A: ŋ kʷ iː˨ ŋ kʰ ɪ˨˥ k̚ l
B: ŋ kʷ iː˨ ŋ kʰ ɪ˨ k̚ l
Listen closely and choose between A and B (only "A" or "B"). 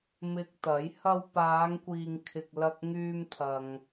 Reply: B